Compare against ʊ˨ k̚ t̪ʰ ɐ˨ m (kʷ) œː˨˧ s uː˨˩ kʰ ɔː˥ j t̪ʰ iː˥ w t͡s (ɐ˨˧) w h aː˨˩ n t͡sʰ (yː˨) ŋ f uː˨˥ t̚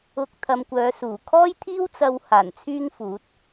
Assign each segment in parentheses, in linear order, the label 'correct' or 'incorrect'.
correct, incorrect: ɐ˧, incorrect: yː˥

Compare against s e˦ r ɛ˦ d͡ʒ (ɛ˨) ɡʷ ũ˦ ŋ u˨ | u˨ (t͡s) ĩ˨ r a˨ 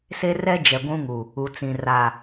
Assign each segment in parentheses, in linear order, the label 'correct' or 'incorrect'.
correct, correct

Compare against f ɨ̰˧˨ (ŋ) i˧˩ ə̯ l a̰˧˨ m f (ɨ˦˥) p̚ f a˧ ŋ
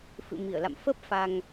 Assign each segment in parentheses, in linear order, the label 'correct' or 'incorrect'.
incorrect: m, incorrect: ə˦˥

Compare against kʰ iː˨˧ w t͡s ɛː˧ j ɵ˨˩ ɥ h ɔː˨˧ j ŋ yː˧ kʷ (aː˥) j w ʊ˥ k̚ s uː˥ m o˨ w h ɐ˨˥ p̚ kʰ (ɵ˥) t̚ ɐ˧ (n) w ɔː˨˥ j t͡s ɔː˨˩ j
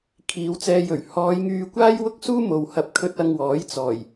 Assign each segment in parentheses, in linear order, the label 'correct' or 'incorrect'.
correct, incorrect: ɵ˧, incorrect: ŋ

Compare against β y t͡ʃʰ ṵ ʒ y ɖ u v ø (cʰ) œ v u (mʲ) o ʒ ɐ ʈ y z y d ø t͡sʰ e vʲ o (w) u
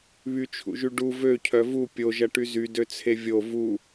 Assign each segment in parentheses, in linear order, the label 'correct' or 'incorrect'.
correct, incorrect: pʲ, incorrect: v

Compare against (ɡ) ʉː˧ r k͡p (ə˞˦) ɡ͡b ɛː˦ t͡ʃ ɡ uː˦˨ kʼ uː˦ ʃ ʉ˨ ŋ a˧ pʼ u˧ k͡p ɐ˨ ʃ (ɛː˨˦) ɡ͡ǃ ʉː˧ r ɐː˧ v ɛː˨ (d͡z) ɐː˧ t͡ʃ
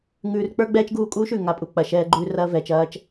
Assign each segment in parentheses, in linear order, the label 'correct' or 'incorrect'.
incorrect: ŋ, correct, incorrect: ɛː˧, incorrect: t͡ʃ

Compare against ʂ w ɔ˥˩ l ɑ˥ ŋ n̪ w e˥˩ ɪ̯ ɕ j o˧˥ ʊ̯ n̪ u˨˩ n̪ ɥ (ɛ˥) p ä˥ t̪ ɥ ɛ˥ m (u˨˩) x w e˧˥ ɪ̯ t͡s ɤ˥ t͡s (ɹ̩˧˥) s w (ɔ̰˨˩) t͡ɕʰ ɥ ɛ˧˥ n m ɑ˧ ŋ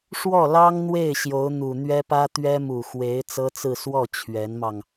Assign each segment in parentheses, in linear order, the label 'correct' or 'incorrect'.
correct, correct, incorrect: ɹ̩˥˧, incorrect: ɔ˥˩

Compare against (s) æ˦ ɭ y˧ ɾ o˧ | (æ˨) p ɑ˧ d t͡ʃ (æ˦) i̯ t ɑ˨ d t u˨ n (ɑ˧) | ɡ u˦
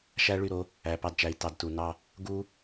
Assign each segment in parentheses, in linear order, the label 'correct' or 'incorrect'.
incorrect: ʃ, correct, incorrect: æ˨˦, correct

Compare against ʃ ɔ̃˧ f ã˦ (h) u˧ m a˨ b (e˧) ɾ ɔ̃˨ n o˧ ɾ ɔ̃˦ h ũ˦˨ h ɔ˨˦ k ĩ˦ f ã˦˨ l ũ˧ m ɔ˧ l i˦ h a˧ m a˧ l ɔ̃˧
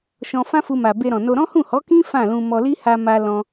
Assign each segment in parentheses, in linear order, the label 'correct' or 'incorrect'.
incorrect: f, correct

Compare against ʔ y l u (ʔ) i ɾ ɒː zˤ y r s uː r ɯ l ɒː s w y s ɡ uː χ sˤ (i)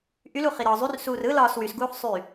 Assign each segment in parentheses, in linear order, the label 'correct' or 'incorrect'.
incorrect: χ, incorrect: y

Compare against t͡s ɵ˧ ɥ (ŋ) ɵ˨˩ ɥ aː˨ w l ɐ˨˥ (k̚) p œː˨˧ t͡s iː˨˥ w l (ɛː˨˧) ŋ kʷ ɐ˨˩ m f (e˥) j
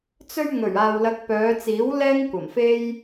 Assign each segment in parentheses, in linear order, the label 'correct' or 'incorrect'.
correct, correct, incorrect: ɛː˥, correct

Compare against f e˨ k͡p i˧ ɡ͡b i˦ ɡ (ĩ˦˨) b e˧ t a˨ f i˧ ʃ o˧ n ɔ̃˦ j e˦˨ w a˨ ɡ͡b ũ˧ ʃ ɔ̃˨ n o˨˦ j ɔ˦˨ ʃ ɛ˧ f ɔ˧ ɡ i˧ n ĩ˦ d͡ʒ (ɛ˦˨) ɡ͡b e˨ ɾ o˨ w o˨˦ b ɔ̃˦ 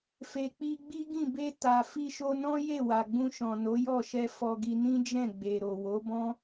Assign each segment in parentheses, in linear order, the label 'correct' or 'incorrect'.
correct, incorrect: ɛ̃˦˨

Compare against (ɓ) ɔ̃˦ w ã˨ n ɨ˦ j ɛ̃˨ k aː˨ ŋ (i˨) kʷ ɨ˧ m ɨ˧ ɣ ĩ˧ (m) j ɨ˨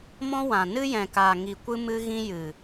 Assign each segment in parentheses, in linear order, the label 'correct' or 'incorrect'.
incorrect: m, correct, incorrect: none

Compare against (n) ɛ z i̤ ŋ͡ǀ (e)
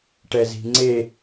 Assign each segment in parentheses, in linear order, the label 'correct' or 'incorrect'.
incorrect: ʈ, correct

